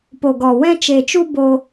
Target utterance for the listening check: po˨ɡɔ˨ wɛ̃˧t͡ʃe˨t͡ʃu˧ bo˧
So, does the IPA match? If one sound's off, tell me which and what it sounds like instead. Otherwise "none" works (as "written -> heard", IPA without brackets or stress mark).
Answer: none